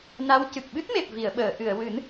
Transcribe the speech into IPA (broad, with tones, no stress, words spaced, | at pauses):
na˧˥w cɨ˨˩k̚ ɓɨ˦˥t̚me˨˩p̚vi˨˩˨ə̯ɓəː˨˩˨ ʔɨ˨˩˨ə̯wɨ˨˩˦n